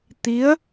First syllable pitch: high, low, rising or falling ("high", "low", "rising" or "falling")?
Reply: rising